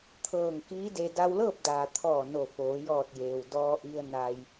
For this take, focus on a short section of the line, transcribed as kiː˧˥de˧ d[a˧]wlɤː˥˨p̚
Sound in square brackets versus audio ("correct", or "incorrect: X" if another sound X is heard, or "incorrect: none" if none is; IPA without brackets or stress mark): correct